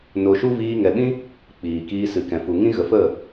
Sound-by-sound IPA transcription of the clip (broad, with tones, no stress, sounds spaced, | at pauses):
n o˧ ʃ u˦ v iː˧ ŋ ɛ˨ ɓ ĩ˦ | k͡p iː˨ k iː˧ s ɨ˨ k ɛ̃˨ f u˨ ŋ ĩ˦ ɣ ə˨ f ə˦˨